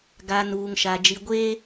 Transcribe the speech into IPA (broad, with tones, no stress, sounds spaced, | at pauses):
ɡ a˨ n uː˨ ŋ ʃ a˨ d͡ʒ i˨ ɡʷ eː˦